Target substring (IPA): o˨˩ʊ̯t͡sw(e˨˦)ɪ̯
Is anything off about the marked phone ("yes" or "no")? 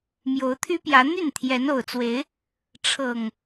no